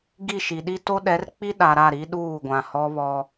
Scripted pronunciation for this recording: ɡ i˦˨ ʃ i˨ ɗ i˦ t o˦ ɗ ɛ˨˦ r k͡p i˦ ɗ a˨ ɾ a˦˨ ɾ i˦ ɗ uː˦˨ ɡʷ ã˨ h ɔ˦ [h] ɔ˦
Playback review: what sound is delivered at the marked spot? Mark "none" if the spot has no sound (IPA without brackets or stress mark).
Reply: β